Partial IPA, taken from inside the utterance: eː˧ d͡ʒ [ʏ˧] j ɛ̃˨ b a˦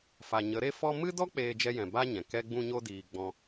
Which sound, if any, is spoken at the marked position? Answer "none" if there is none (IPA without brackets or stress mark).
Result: ɛ˧